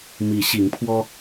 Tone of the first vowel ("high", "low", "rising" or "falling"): rising